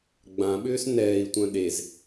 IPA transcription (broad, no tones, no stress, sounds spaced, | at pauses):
ɡ͡b ã ɓ ʏː s n ɛː i̯ tʷ œ̃ ɗ e z